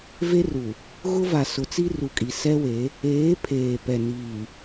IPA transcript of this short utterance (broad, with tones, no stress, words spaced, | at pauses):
ve˦ru˨ | ɣʊ˦va˨ sʊ˨˦t͡si˦ ru˨kʼi˨ sɛ˦we˨˦ | eː˨˦ pʰeː˨pɛ˨ niː˨